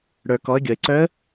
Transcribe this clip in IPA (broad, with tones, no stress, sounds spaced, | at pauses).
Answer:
ɽ ə˞˩ k ɔ˩˧ ə̯ ɡʲ ɔ˩ ɪ̯ ǀ œ˧˥ ə̯